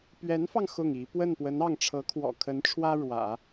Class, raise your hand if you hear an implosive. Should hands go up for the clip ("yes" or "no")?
no